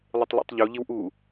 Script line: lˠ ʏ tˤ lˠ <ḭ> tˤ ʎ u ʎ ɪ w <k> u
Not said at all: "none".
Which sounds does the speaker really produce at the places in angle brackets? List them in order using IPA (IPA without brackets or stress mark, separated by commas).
ḭ, ʔ